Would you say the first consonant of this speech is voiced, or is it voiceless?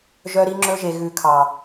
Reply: voiced